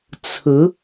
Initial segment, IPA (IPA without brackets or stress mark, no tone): t͡sʰ